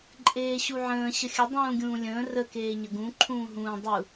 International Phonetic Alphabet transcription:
ǃʼ eː ɕ u ʕ ə̃ː ɕ ə xʲ ə dˤ ũː ɡʲ ũː lʲ ə̃ː r ə k eː ɲ ə ɡ ũ ǃʰ ũː ɦ ũː dˤ u

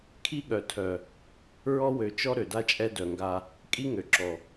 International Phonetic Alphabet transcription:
kʰ i˦ ɠ œ˨ tʰ œ˨ | ɹ ɔ˦ w ø˨ t͡ʃ ɔ˦ ɾ ø˨ d a˦ t͡ʃʼ ɛ˦ d œ˨ ŋ ɡ a˦ | kʼ i˦ ŋ ø˨ ǁ ɔ˨

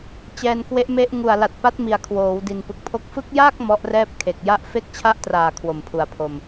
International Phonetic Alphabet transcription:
t͡ɕ ɛː˧ n k w e˦˥ ʔ m e˦˥ ʔ ŋ u˨˩ a̯ l a˨˩ t̚ p a˦˥ t̚ m i˨˩ a̯ kʰ w oː˩˦ w d i˨˩ n p ɯ˨˩ k̚ pʰ o˥˩ k̚ f ɯ˦˥ k̚ j aː˥˩ k̚ m ɔ˦˥ ʔ r ɛː˦˥ p̚ kʰ e˨˩ k̚ j a˦˥ ʔ f e˦˥ k̚ t͡ɕʰ a˦˥ ʔ t r aː˨˩ kʰ w o˨˩ m pʰ u˨˩ a̯ pʰ o˧ m

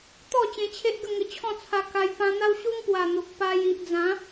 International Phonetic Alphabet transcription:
t̪ ɔ˥˧ t͡ɕ ẽ˧ t͡ɕʰ e˦ ʔ ɡ ə˥˧ ŋ ə˧ t͡ɕʰ ɔ̃˥˧ t͡sʰ a˧ k a˧ j p ã˧ n̪ a˦ w ɕ u˦ ŋ p w a˨˩ n̪ o˨ k̚ p a˧ j i˨ ʔ d͡z ã˨˦

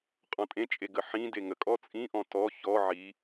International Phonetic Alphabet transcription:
qʼ ɔ̃ tʼ ẽ t͡ʃʼ e ɡ ə ħ ĩ d e ŋ ə kʼ ɔ t͡sʼ ĩ ʔ ɔ̃ t ɔ ç ɔ ʕ i

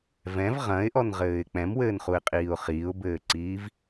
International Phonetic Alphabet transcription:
v ɛ̃ v ʁ ɐ̃ ɪ̯ ʔ ɔ n ʁ ɘː ɪ̯ k͡p ɛ̃ m w ɘː n χ u ɪ̯ qʼ iː ʊ̯ χ iː ʊ̯ b ɘː ǀ iː v

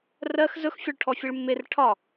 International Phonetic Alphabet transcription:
r ɜ x z ɵ x fʲ ɒ ɭ ʈʰ ɔ fʲ e ɭ mː e r ʈʰ ɒ

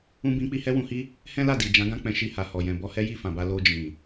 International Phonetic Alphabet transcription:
ũ˦ b ĩ˦ k͡p i˦ h ɛ˦ w ũ˧ h i˦ | h ɛ̃˦ l a˦˨ d i˨ d͡ʒ ã˨˦ ɡ ã˦˨ k͡p ɛ̃˧ ʃ i˧ h a˨ h ɔ˨ j ɛ̃˨ b ɔ˧ h ɛ˦ j i˦˨ f ã˨ b a˧ l o˧ d͡ʒ ĩ˨

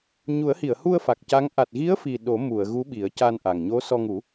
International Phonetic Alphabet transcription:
ɲ u˨˩˦ ə̯ h i˨˩˨ ə̯ h u˧ ə̯ f a˨˩ k̚ c a˧˥ ŋ ʔ a˨˩ t̚ ɣ i˧˥ ə̯ f i˨˩ ɗ o˨˩˦ m u˨˩˨ ə̯ ɣ u˧˥ ɓ i˨˩˦ ə̯ c a˧ n ʔ a˨˩ ŋ ɲ o˧˥ s ɔ˧ ŋ u˨˩˦

